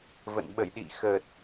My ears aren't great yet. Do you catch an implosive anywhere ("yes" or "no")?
yes